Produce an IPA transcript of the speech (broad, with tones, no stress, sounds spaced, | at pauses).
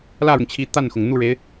l ä˥˩ ɻ ʊ˩ ŋ t͡ɕʰ i˧˥ t̪ a˥˩ n x ʊ˩ ŋ n̪ u˥˩ ɻ e˧˥ ɪ̯